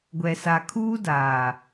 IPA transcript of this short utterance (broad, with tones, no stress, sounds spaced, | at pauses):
ɡʷ ɛ˨ s a˨ kʰ uː˦ d aː˨